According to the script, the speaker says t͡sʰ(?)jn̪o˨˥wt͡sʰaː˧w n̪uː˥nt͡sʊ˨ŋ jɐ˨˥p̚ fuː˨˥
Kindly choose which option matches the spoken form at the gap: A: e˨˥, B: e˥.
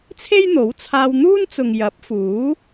B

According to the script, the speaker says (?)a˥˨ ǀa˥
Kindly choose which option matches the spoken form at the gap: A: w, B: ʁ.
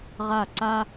B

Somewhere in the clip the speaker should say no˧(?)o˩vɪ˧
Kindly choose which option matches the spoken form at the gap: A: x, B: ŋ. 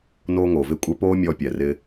B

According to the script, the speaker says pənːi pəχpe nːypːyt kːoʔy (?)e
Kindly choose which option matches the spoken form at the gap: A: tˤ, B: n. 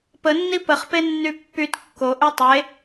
A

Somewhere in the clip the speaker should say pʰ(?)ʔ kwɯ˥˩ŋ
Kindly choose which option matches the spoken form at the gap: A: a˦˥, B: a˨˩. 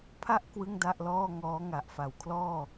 A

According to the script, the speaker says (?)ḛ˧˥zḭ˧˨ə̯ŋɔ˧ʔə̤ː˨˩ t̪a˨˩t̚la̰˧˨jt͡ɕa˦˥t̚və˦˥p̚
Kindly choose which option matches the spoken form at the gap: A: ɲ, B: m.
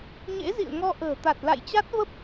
A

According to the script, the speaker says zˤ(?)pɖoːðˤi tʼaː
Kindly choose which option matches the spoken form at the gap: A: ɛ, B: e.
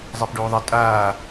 B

